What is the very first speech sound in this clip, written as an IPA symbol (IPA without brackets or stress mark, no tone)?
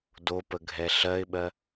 d